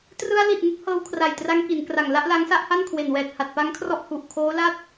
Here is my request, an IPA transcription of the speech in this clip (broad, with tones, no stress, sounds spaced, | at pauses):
t r ɯ˧ a̯ l i˨˩ t̚ ŋ ɯ˦˥ k̚ h ɤː˧ w kʰ r a˨˩ j t r a˧ ŋ k i˩˦ n k r a˨˩ ŋ l a˥˩ ʔ l a˦˥ ŋ s a˥˩ ʔ h a˥˩ n kʰ w e˨˩ n w ɛː˨˩ t̚ h a˨˩ t̚ p a˦˥ ŋ kʰ r ɔ˦˥ ʔ h u˨˩ ʔ kʰ oː˦˥ l a˥˩ t̚